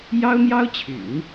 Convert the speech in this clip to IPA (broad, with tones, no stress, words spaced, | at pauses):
jɑ˥ʊ̯n̪jɑ˥ʊ̯t͡ɕʰy̰˨˩˦n